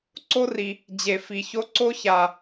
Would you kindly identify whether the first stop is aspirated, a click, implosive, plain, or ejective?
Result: click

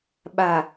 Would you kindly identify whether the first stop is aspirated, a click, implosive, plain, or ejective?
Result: implosive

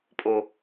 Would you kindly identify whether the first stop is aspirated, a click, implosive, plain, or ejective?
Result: ejective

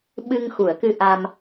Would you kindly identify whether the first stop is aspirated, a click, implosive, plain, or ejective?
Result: implosive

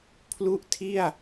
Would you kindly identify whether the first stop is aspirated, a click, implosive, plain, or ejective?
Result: aspirated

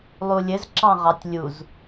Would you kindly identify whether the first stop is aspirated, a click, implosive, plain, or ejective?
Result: click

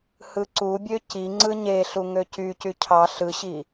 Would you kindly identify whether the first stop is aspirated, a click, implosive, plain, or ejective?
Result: click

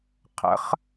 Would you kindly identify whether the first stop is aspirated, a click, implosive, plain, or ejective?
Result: aspirated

